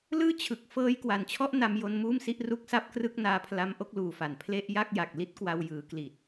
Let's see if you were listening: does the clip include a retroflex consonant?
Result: no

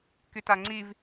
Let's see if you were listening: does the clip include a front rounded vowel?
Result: yes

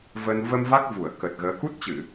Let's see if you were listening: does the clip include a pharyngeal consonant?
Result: no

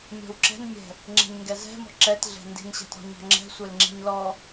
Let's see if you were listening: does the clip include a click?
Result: yes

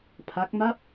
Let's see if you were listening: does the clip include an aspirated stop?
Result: yes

